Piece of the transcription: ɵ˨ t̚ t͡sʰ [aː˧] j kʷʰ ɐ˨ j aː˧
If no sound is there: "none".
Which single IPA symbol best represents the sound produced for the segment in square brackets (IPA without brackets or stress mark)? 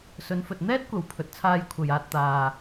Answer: aː˧